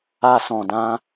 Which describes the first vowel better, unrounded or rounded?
unrounded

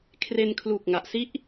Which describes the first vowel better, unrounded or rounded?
unrounded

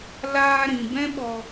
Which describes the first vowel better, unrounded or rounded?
unrounded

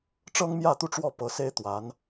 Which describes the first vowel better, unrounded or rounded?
unrounded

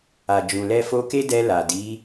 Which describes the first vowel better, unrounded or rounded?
unrounded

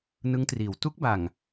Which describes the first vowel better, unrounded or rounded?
unrounded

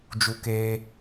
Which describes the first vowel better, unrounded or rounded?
rounded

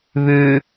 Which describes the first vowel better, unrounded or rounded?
rounded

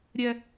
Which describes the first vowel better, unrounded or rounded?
unrounded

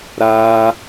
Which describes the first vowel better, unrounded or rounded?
unrounded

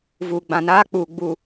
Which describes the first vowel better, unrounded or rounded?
rounded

